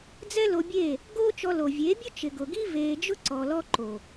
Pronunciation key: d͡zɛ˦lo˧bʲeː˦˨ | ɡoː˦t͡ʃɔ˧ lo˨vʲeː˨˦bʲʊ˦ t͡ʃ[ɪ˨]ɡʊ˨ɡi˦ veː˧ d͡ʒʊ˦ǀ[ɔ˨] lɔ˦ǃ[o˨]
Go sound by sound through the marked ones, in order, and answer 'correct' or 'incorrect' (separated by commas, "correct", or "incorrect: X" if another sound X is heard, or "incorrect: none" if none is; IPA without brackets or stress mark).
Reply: correct, correct, correct